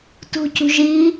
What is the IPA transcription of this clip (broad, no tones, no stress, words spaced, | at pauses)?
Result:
tṳcṳʒi